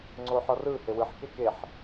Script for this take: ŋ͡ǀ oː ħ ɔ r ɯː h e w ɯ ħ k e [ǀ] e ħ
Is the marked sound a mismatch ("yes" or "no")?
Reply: yes